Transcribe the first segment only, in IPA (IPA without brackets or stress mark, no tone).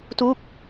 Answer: t